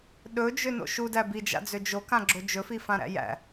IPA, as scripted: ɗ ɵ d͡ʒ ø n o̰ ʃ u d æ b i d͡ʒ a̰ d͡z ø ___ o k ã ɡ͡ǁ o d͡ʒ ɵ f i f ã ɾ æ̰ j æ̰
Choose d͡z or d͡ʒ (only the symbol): d͡ʒ